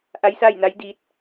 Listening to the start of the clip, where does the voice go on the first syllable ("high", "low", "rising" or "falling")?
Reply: rising